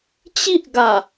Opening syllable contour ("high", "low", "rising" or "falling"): high